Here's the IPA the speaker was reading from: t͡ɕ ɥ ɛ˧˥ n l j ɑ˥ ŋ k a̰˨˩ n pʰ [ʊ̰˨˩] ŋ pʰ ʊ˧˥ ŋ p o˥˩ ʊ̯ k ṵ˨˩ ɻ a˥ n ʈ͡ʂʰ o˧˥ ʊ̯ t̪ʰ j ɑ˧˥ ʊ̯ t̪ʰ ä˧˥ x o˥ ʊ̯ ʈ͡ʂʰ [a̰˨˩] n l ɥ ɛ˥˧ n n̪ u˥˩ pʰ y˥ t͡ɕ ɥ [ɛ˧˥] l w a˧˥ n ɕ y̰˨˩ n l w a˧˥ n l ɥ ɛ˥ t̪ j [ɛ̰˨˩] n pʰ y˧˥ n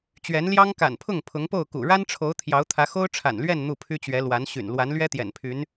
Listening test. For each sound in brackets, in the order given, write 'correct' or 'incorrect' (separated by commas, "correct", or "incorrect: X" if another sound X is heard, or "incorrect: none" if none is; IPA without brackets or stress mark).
incorrect: ʊ˥˩, correct, correct, correct